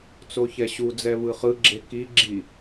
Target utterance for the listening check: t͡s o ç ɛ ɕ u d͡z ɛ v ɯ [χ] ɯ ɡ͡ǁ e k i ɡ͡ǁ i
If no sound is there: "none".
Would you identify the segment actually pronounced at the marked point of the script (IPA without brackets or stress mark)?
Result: χ